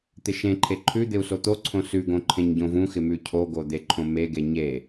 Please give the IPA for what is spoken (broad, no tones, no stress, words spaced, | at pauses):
t̪ɪʃẽǃʰe ǃʰʉ d̪ɪu̯sot̪oǀʰõ sʉɡõ ǃʰẽɲɟõvũxɪ mʉcʰoɡo d̪eǃʰõmeɡe ɲe